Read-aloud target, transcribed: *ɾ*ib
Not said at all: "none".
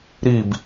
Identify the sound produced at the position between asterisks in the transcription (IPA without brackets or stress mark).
ɾ